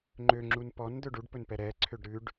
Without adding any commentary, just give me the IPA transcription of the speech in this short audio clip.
ŋ͡ǃ ø ŋ͡ǁ u n p ɔ n d̪ ɵ ɖ u ɖ p ɵ n p ɛ ɾ ɛ ǀʰ ø ɖ ɾ ʉ ɖ

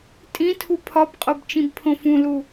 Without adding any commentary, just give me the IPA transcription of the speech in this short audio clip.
tʼ ĩ tʰ u pʰ ɒ b qʼ o b t͡ʃ ĩ b pʰ õ f ũ l u

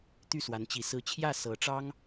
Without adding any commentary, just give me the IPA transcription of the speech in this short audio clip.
t̪ y˥˩ s w a˧˥ n t͡ɕ i˧˥ s ɹ̩˥ t͡ɕʰ j ä˥˩ s ɤ˧˥ ʈ͡ʂ ɑ˥ ŋ

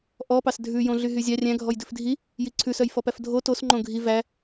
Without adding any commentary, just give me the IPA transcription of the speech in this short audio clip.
ʔ ɔ p ɑ s dʱ ʉ j õ ɮ y ɦ y zʲ ɑ rʲ æ̃ ɡʱ ɔ j d ʉ f dʱ i | j i ǀʰ ʉ s œ j f ɔ p æ f dʱ o t o s ŋ͡ǃ õ ɡʱ i v æ

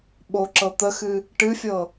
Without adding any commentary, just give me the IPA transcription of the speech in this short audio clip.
ɓ o ǁ ɤ t̪ ə x ɨ | ʈ ɨ fʲ ɤ

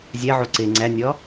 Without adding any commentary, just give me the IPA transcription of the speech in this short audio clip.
zʲ æ ʕ o ǀ e ŋ͡ǀ æ nʲ ɒ

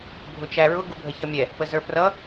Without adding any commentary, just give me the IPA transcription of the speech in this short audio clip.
bʱ ʊ t͡ʃ æ ɹ ʊ ɡ u bʱ ə ç ʌ mʲ ɛ | p ə z ə˞ p r ʌ

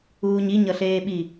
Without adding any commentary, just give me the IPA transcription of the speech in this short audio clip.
uː ɲ i ɲ ʌ ɬ eː ɓ i

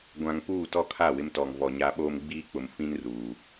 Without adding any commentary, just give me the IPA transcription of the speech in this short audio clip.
ɡʷ ã˨ ŋ p uː˦˨ t ɔ˦ kʰ a˦˨ w ɪ˦ m t ɔ˨ ŋ v ɔ˨ ɲ a˦ ɓ oː˦ m ɡ͡b iː˦ k͡p ʊ˨ m f ĩ˦ n r uː˨

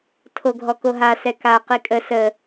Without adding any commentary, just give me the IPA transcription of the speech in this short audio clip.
tʰ o ɡʱ ɔ k o ɦ a s ɛ k a q i kʼ ə s ə

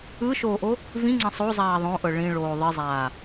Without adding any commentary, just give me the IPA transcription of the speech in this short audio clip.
ɯ ʃ oː ʔ o | v ĩ ŋ͡ǀ ɛ̃ sˤ o zˤ aː ðˤ õ ʔ ɤ ɭ ĩ ɭ oː ðˤ i zˤ aː

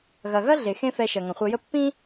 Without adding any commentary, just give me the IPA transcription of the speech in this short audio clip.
ɣ ɐ˩ ɣ ɐ˥ ɮ e˩ x ẽ˥ f ɛ˧ ʃ ɐ˩ ŋ ɐ̃˩ χʷ ɐ˧ j ə˥ pː ĩ˥

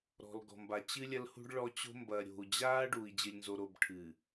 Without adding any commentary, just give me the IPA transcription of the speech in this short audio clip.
ɾ ɔ̤˨ l ɡ ɔ̤˨ m b a˨ t͡ɕ ɨ˦ lʲ ɐ˦ l h ṳ˦ ɖ ɭ ɔ˦ t͡ɕ o̤˦ m b ɐ˨ ɾʲ o̤˨ u̯ d͡ʑ aː˦ ɖ uː˨ i̯ d͡ʑ ɨ˨ lʲ n z o˨ ɾ o˨ b ʈʰ ɨː˨

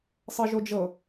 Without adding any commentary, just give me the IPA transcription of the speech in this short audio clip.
sˤ ɤ ʒ o d͡ʒ ɤ

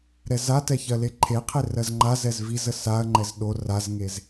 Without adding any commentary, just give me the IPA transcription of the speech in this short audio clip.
ɾ ɛ z a t ɛ ç ɜ l e ǃʰ e qʰ e r ɜ z ŋ͡ǃ a z ɛ z v i z ə s a ɐ̯ ŋ͡ǃ ɛ z ɗ o r a z ŋ e z

